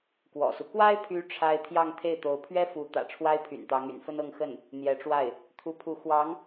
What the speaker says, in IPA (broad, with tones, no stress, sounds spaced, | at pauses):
k w ɔ̰˨˩ s u˦ k w a˥ ɪ̯ pʰ y˧˥ ʈ͡ʂʰ a˥ ɪ̯ t̪ʰ j ɑ˥˧ ŋ t̪ʰ e˥˩ ɪ̯ t̪ o˧˥ ʊ̯ pʰ ɥ ɛ˥ f u˧˥ t̪ ä̰˨˩ ʈ͡ʂʰ w a˥ ɪ̯ pʰ y̰˨˩ n t̪ ɑ˧˥ ŋ y̰˨˩ n f ə˥ n ɤ˥˧ ŋ x ə˥˩ n | n̪ j ɛ˧˥ ʈ͡ʂ w a˥˩ ɪ̯ | t̪ʰ u˧˥ pʰ u˧˥ x w ɑ˧˥ ŋ